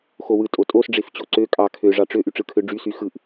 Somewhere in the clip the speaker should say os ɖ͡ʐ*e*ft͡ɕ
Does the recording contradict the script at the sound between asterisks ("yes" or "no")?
no